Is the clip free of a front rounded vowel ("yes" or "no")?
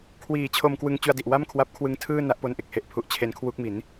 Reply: yes